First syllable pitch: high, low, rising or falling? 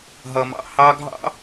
low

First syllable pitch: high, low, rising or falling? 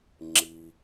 low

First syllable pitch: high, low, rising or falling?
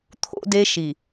high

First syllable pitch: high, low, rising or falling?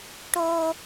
high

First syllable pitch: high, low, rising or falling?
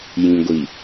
low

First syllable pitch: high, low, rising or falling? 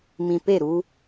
low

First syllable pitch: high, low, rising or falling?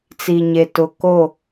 low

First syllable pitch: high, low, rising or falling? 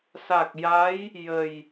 low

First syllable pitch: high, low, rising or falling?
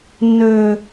low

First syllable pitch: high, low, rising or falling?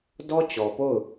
high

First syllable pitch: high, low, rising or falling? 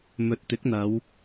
low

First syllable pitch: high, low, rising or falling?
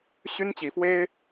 high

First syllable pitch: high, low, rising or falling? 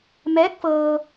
rising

